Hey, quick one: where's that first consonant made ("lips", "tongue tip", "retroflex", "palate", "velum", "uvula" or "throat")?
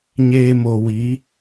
palate